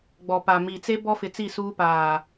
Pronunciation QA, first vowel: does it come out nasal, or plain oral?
oral